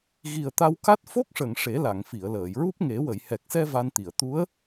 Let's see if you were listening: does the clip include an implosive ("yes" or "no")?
no